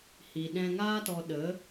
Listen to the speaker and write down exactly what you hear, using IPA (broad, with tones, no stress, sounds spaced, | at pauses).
h i˨ ɗ ɛ̃˧ ŋ aː˦ t ɔ˧ ɗ ə˨˦